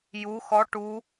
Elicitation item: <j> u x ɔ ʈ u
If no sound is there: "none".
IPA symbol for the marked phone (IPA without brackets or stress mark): j